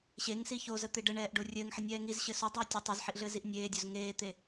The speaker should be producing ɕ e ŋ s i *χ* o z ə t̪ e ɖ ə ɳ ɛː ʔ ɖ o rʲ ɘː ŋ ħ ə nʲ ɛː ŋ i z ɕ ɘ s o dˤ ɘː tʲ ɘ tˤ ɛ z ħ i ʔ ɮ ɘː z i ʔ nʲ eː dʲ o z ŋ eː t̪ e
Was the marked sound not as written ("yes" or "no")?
yes